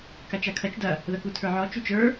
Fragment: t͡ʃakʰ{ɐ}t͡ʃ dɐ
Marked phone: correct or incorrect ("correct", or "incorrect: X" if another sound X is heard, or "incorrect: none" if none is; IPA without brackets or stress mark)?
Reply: correct